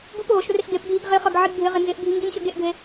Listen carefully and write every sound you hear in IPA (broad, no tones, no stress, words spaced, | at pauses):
ɡup ɦoʃrɪɬ ɡepdʱiɡ ʁɪχʌɡ ʕiɡbʱɪʁɪ nzɪʔbʱi ŋɡinɕʌɡeʔɡʱe